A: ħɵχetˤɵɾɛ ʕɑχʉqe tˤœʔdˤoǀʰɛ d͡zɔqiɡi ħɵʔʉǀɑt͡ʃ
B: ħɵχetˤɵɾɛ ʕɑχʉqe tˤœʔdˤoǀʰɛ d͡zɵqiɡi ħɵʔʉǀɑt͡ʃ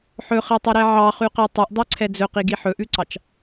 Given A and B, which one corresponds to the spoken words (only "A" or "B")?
B